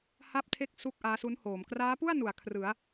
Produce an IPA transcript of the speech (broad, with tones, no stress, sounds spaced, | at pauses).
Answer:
h a˥˩ p̚ tʰ e˥˩ k̚ s u˥˩ k̚ ʔ aː˦˥ s u˦˥ n h oː˩˦ m k r aː˦˥ p u˥˩ a̯ n u˩˦ a̯ kʰ r ɯ˩˦ a̯